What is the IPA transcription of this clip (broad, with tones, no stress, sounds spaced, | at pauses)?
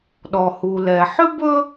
ɗ ɔ˩ h u˩ l ɛ˩ ħ ʏ˥ b ɵ˥